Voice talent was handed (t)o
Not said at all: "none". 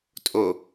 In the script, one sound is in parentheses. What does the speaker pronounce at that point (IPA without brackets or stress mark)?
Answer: tʼ